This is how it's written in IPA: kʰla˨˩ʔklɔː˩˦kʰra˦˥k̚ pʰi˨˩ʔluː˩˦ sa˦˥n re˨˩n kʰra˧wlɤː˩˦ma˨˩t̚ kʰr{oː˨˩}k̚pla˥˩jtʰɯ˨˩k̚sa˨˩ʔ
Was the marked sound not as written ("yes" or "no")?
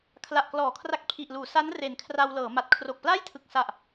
yes